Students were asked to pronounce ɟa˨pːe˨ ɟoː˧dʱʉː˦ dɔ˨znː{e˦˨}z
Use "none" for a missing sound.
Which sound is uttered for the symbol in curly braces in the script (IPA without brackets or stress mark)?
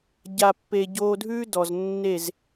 e˦˨